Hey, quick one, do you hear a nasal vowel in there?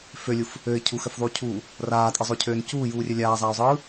no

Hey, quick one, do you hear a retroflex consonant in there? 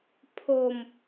no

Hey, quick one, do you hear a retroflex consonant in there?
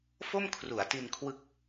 no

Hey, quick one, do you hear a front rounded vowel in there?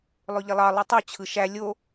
yes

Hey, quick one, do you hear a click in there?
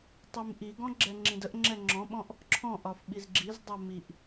yes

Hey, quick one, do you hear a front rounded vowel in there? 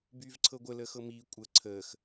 yes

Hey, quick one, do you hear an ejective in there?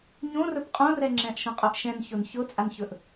yes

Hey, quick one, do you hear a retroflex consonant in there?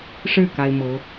yes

